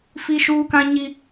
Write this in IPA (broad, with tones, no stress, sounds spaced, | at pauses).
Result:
f i˦ ʃ uː˦ k ã˦ ɲ i˦